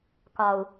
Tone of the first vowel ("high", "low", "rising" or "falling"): low